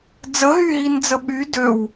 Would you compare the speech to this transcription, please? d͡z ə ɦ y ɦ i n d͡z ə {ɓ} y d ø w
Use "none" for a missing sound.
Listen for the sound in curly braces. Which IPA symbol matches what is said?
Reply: ɓ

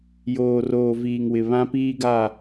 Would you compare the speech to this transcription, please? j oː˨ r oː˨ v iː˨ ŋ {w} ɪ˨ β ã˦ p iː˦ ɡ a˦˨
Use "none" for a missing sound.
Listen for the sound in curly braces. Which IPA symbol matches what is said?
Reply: w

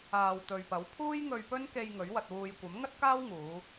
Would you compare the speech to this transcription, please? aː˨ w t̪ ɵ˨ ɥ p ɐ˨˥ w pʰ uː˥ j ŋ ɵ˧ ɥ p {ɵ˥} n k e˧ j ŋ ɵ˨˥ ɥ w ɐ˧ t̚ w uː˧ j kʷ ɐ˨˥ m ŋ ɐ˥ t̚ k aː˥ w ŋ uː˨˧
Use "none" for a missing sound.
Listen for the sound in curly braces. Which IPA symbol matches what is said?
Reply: ɵ˥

